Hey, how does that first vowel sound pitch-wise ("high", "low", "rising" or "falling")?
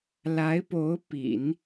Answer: rising